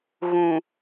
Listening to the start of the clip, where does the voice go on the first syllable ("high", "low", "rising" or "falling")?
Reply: low